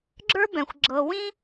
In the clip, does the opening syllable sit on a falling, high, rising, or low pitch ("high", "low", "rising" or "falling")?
high